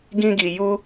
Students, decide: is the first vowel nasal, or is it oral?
nasal